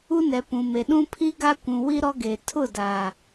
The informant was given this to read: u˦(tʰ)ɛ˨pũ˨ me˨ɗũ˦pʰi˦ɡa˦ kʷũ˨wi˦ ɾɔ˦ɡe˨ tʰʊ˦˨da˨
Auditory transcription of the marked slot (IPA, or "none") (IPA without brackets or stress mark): n